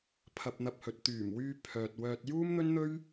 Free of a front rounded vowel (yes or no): no